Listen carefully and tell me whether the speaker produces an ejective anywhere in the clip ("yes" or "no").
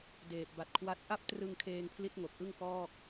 no